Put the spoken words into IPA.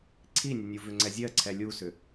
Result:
ǀʰinʲə nʲuvʏŋ͡ǀɛzʲɜ ǀʰɛlʲusʏ

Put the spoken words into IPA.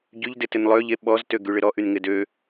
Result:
ɟyʎdɪ tɪnlˠøʎe ɓɔztø ɡyɭɪɾɔ ʔynŋɪdø

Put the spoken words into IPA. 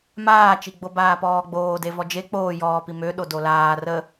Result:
maːt͡ʃiɡ͡bo baːpɔːɡ͡boːde vɔd͡ʒe k͡poː jɔːpi mø ɗodolaː rə

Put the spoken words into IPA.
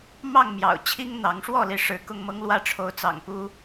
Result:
mɑ˥˨ŋmjɑ̰˨˩ʊ̯ t͡ɕʰi˦ŋn̪ɑ˨˦ŋʂwɔ˥˨li˨˦ ʂɻ̩˨˦kʊ˥˨ŋmɤ˦ŋlwä˥˨ ʈ͡ʂʰo˨˦ʊ̯t͡sɑ̰˨˩ŋpu˦

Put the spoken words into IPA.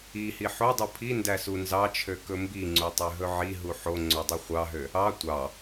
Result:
ihi ħodˤu pʰi ndæsunzɑt͡ʃʰø kɵmbiŋ͡ǀu tˤøɦɵʕiɦu ħo ŋ͡ǀodˤøχʷɑɦø | ɑ tʷɑ

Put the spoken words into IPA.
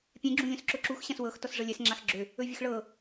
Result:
pʲɛ̃ɡ͡ǁũ lʲõsǁʊǁux ɕãswɤxtɔs ʐɤlʲɛsŋ͡ǁax ɡ͡ǁø | ɵvʲəxɭɤ

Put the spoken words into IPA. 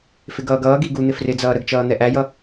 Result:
fɪɡʌːɡʌːɡi ɡun̪ɪ frɪd͡zʌː ɾəɡt͡ʃʌː n̪ɛʔæjʌ

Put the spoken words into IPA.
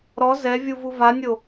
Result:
ɾɔ zɛvʲu vuvanʲo

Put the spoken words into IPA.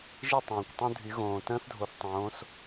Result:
ʒi˥˨tˤõː˩kʷtˤũ˦dʱy˩˧ ɣõː˩ tə̃ː˦θdʱo˩θ tˤõː˩˧s

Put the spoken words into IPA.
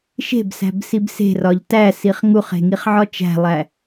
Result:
ʃe̤bsæ̤b sibse̤rɒʎ tæsiχ ŋuχe̤ ŋiχʕɒt͡ʃæ̤lˠæ

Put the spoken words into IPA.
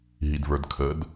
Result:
ɦidvə˞dkʰəd

